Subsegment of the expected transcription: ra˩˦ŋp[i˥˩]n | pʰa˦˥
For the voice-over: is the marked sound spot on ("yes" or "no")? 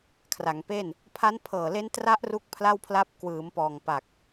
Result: no